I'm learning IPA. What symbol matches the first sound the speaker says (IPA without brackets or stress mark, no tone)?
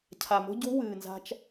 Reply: cʰ